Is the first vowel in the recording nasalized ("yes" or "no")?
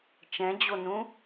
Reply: yes